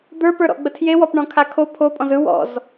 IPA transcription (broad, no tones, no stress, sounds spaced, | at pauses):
d̪ ə˞ p ə˞ ɾ ɔ̰ ɡ͡b ə tʰ j e w ɔ p ɳ ɔ̃ kʰ a kʰ o pʰ o pʼ ɔ̃ z ɯ w ɔ̰ z